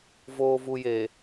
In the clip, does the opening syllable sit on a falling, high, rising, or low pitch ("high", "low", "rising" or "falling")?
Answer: low